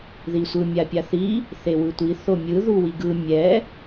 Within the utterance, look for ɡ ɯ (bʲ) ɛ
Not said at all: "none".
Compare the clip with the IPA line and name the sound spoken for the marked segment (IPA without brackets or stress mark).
mʲ